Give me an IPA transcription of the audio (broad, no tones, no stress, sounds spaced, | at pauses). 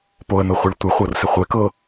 p o ə̯ n o χʷ ɪ ɭ tʷ ɪ χʷ ɤ r s ɪ χʷ e k ɤ